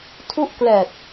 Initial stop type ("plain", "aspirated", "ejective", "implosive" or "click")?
aspirated